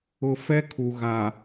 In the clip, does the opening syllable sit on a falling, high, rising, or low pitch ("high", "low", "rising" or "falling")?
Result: low